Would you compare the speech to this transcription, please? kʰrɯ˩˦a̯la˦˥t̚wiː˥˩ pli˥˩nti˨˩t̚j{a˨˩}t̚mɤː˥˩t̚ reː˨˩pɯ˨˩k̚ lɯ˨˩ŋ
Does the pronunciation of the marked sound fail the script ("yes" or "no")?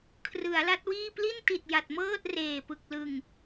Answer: no